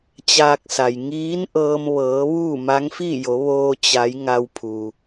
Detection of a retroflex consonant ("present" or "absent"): absent